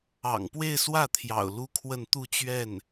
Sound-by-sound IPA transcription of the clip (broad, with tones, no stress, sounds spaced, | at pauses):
ɑ̰˨˩ ŋ p w e˥˧ ɪ̯ s w ä˥˩ t̪ʰ j ɑ̰˨˩ ʊ̯ l u˥ kʰ w ə˥˧ n t̪ u˥˧ t͡ɕ ɥ ɛ˥˩ n